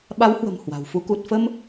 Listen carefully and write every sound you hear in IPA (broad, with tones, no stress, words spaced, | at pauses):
ɓa˨˦whwə̤˨˩m hwa̤˨˩wfu˨˦ ku˨˩t̚fə˧m